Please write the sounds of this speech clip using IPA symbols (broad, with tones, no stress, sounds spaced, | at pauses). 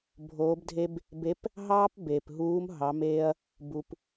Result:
bʱ oː˧˥ b dʱ e˥ b | b e˧˥ p | ɦ ɑː˥ p b eː˩ p ɦ uː˧˥ m ɦ ɑ˩˧ m eː˧ ɐ̯ | b u˩ p